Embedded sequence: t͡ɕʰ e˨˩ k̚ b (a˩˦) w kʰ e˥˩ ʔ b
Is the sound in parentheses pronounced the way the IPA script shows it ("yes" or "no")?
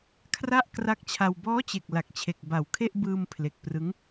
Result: no